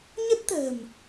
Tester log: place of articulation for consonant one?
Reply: palatal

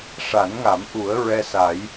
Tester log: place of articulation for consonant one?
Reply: retroflex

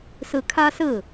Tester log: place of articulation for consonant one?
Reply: alveolar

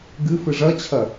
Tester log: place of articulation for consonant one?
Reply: velar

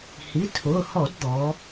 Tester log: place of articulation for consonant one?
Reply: glottal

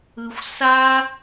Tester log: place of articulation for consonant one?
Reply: velar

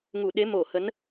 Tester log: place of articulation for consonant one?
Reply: velar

